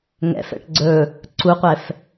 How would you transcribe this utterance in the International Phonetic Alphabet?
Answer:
ŋɛ̰fɛ̰ʈ ɡ͡ǀɵ | ǀuqʷɛf

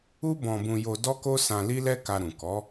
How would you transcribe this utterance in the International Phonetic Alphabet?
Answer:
u˦bɔ̃˧bũ˧jo˧ dɔ˦ko˦sã˧ li˦lɛ˦ka˧ɾũ˨ kɔ˨˦

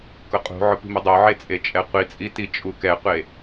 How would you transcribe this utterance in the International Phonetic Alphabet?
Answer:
kʊqʼṳʕʊp i̤mʊdˤoʕe t͡sʼet͡ʃʼɛqʷit͡sʼi tit͡ʃʼukɛqʷe

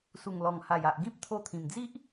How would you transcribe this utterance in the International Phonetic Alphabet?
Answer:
su˨˩ŋlɔ˨˩ŋha˨˩ja˨ʔ ɡĩ˦p̚ t̪ʰo˧t̪ʰĩ˨˩md͡zi˦ʔ

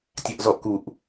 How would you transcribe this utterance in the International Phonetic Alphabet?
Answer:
tʲaʔzɔʔkuʔ

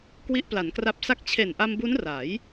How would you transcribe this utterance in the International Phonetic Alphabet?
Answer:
kwi˦˥ʔpla˩˦nkra˦˥p̚sa˥˩k̚ t͡ɕʰe˨˩nʔa˧mbu˦˥n ra˩˦j

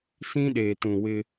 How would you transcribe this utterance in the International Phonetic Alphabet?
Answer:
sĩ˦ɗeː˨tũ˨wɪ˦

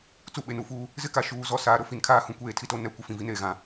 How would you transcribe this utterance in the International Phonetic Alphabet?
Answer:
t͡su˦˨ɓe˨nu˦fuː˦ | zɪ˦ka˨ ʃuː˦ zɔ˦˨saː˨˦ ɾʊ˨ fi˨nkʰaː˦hũ˨˦ kʷeː˦tʰi˦to˦ nɛ˦ kʷɪ˨ fĩ˨vi˦neː˨ ɣã˨

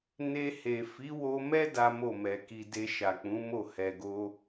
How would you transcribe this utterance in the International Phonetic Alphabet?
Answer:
ne˧ he˨ fi˨˦wo˧mɛ˦ da˦mo˦˨mɛ˨ki˧ de˧ʃa˨k͡pũ˨˦mo˦˨ hɛ˨ɡo˧

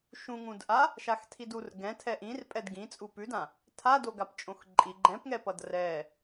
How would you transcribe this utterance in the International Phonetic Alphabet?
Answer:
ʃũŋũdʔa | ʃaxtʰidur ɡɛ̃ tʰɛʔĩrpʼɛd ɡĩt͡sʼu pʉdã | tʰa doɡapt͡ʃʼõxǃʼi ɡ͡ǃɛ̃pŋɛpʌd rɛ

